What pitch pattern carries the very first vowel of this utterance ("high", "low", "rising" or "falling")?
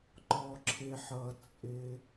low